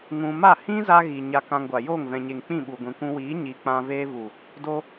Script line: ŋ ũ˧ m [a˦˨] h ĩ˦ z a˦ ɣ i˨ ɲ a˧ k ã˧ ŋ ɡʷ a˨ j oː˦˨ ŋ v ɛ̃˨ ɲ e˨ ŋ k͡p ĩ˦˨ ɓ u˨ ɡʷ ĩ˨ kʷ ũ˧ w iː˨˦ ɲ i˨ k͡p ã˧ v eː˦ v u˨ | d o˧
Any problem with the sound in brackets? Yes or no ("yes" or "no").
no